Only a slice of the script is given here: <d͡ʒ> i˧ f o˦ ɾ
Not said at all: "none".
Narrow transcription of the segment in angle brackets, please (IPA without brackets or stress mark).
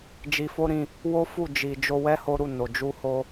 d͡ʒ